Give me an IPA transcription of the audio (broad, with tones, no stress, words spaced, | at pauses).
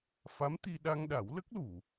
fa˧˥mt̪i˧ ɗa˧ŋɗa˨˩˦wlə˦˥k̚lu˨˩˨